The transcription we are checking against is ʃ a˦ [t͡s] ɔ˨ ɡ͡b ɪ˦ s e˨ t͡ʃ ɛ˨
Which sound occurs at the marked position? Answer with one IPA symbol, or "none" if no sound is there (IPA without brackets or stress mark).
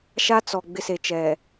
t͡s